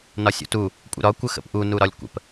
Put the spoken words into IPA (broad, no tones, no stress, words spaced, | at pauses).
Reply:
nɒsʲṵtu | kʷʼə̰ɾɒ kʷəxə̰pʔu nuɾɒlʲkʷə̰p